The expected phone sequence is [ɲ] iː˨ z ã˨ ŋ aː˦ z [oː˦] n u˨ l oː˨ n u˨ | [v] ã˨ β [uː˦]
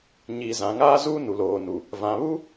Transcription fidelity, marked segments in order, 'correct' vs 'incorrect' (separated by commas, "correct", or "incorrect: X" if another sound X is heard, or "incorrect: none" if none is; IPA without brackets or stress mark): correct, incorrect: uː˦, correct, incorrect: u˦